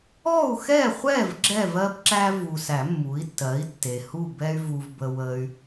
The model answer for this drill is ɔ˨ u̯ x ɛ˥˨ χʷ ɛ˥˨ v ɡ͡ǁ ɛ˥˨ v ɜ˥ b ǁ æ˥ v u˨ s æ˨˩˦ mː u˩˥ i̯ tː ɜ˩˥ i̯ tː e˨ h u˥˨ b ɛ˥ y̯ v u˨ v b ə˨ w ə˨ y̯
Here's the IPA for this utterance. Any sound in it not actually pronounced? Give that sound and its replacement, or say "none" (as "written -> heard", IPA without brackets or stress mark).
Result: ɔ˨ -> ɔ˥˨